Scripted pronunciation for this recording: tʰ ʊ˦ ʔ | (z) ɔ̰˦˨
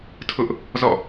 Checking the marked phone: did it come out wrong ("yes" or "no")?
no